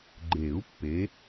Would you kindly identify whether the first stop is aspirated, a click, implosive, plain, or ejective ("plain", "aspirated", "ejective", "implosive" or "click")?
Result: click